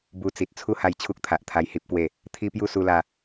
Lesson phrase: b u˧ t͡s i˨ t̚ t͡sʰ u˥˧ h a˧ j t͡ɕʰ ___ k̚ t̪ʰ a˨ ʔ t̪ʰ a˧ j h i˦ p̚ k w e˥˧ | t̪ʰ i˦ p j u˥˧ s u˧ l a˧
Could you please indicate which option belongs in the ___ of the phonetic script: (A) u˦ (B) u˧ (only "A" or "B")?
A